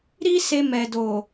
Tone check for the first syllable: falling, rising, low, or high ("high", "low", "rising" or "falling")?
high